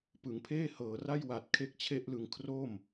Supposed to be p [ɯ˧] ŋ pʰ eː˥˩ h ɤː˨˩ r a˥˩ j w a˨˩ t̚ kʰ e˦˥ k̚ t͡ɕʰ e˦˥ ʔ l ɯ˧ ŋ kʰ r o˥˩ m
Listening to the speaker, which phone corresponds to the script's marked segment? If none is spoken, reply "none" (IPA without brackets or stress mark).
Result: ɯ˩˦